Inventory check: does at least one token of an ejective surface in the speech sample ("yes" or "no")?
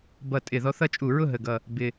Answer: yes